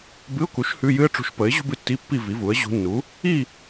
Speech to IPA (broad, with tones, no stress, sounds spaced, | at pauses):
b ɨ˧˥˧ ʊ̯ k u˩˥ ʃ h ʉ˧˥˧ j ɨ˥ ə̯ ʈ͡ʂ ṳ˧˥ ʃ p ə˩˥ ɪ̯ ʑ ṳ˥ b ɨ˧˥ tː i˧˥˧ pː i˥˨ v i˩˥ v u˩˥ ə̯ ʑ ṳ˧˥ nː u˩˥ | i˥˨